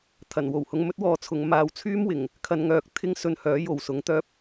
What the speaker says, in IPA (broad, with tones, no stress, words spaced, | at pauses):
t̪ʰɐ˨˩nwo˨˩whʊ˧ŋmɵ˥t̚ wɔː˧t͡sʰʊ˨˧ŋmaː˧w t͡sʰyː˥mwɪ˨˩ŋ | kʰɐ˧nŋœː˧k̚ t̪ʰɪ˥ŋsɵ˧nhœː˨˥ jo˨wsʊ˨˥ŋt̪œː˥p̚